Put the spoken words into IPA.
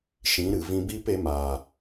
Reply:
ʃĩ˨˦ɾɨ˨ vĩ˦ biː˦pe˨˦maː˨

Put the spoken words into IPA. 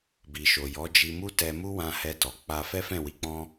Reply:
bi˨ʃo˨jɔ˨˦ d͡ʒi˧mu˦ tɛ˧mu˦wã˧ hɛ˧tɔ˨ k͡pa˧ fɛ˦fɛ̃˦˨wi˧k͡pɔ̃˦

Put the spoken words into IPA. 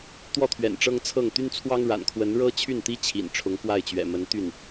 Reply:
t̪wɔ˥˩t̪ʰɥɛ̰˨˩n ʈ͡ʂɤ˥ŋt͡sʰɤ˥˩ŋ t̪y˥nt͡sʰwɑ˥ŋ ɻa̰˨˩nkʰwə˧˥n ɻɤ˥ t͡ɕʰy˥˩nt̪i˥ t͡ɕʰḭ˨˩nʈ͡ʂʰʊ˧˥ŋkwa˥˩ɪ̯t͡ɕɥɛ̰˨˩ mə˧˥nt̪y˥˩n

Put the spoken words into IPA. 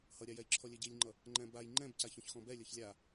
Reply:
hʌɾʲajɛj ǁʰɔlʲɛɟilʲŋ͡ǃʌ | ŋ͡ǃɛ̃baj ŋ͡ǃɛ̃bcaç ɔ̃çxɔ̃bɛ lʲʌçlʲa

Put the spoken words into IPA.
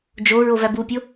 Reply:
d͡ʒo ɹovæbupʲo

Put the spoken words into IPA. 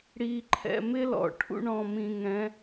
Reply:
ɽi˧ǃʰɛ̰˧ mɪ˥lɔ̰˩ ʈʰṵ˥ɳɔ̃˧mĩ˧ŋɛ̃˧˥

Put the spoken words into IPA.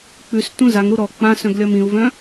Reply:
k͡pʉs tũzaŋɾu ɾɔ k͡pãsœ̃ɡ lʲɒmĩu̯vœ̃

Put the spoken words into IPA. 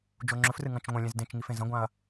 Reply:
d͡ʒoŋ͡ǁɵfrɨ ŋɐ̃t͡ʃŋʷɐ̃lʲẽz dẽt͡ʃŋif ẽzɐ̃ɡʷãɐ̯

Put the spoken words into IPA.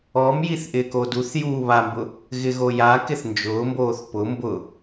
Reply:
ɔmjiθ ʔɪːkoduθjuː βambʊ | ɣɪɣojakɪθ nd͡ʒʊːmboːθ pʊ mbʊ

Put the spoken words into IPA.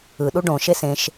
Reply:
ɯ ɗuɖõ ʃesẽʃ

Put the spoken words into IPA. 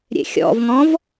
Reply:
ɾʲḛxʲɔ̰vŋɔ̃v

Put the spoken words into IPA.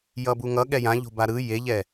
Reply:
jʌbuŋʌ ɠɛjã ʎo̤baɾɯ jeʎɛ

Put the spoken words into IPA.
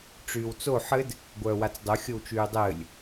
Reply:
ʈ͡ʂyːwt͡so ħɘd | ɡʷœːwat͡sdˤo xʲowt͡ʃyːdˤɘːlʲ

